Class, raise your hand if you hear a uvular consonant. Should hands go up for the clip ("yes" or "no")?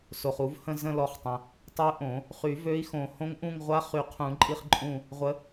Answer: yes